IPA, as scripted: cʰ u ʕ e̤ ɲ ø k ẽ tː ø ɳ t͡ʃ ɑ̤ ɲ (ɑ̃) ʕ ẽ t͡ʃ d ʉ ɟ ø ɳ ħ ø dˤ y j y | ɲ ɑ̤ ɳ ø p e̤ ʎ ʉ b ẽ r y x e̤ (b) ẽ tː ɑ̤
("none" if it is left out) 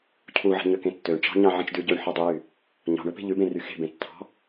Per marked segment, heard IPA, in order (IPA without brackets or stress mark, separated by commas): ɑ̃, b